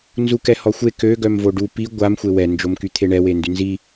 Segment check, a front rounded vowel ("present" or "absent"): present